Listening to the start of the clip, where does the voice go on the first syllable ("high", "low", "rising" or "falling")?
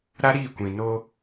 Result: high